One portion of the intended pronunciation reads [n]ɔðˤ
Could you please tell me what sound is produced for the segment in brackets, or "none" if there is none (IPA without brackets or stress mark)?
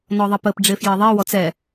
n